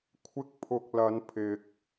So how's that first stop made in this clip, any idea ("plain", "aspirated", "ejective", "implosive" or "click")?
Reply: aspirated